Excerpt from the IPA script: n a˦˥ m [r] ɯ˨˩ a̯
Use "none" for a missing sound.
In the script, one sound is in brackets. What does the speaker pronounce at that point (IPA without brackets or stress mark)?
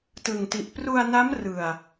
r